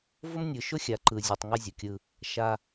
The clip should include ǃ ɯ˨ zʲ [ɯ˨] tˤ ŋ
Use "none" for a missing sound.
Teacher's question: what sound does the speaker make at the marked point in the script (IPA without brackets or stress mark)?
ɯ˨